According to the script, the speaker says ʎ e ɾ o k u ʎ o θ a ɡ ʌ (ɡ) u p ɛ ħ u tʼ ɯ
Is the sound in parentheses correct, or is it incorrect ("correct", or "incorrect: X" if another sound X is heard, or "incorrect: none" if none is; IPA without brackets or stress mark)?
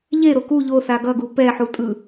correct